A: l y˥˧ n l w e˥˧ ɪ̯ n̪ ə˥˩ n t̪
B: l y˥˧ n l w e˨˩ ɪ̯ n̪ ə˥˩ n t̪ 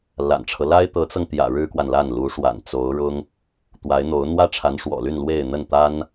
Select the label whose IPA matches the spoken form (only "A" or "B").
A